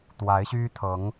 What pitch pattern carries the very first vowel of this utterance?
rising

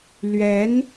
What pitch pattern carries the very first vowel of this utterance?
rising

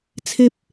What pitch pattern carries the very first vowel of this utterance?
high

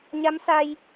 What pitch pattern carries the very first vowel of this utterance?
rising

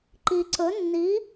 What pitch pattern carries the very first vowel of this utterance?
low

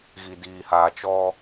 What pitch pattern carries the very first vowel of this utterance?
low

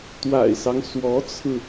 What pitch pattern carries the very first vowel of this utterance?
low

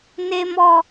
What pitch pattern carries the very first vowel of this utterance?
low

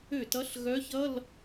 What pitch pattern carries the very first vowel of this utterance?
falling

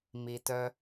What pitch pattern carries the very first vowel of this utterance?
low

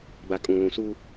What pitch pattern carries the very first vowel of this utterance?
low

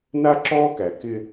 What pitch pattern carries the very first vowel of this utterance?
high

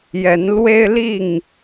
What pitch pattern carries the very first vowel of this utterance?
rising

